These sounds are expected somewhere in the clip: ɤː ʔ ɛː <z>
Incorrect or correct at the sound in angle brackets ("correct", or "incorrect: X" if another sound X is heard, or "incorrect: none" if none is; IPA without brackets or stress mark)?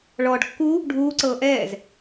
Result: correct